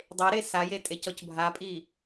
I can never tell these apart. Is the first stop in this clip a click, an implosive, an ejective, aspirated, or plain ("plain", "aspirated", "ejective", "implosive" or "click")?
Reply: plain